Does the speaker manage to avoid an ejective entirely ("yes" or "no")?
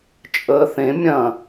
no